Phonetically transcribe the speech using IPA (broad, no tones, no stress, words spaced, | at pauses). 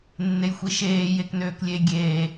nːejxʷiʃeː jeknøːklʲe ɡʲeː